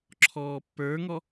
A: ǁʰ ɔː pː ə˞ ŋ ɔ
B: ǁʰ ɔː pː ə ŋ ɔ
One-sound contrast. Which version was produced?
A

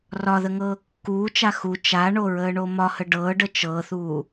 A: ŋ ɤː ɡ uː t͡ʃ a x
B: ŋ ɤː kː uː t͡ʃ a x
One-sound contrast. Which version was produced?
B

